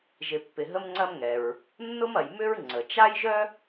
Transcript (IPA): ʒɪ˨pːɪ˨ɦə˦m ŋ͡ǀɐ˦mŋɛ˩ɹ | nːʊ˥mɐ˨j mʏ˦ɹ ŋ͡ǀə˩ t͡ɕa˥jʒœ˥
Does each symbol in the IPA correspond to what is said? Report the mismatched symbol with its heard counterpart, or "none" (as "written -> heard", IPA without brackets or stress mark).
t͡ɕ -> t͡ʃ